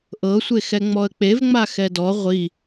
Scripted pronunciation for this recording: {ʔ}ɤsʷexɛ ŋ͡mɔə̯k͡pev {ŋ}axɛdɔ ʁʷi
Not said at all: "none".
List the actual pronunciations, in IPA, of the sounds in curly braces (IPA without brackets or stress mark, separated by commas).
ʔ, ŋ͡m